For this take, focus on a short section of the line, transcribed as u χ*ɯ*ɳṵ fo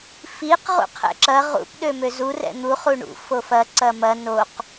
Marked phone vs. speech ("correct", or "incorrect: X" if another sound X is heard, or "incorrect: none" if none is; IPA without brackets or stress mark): incorrect: u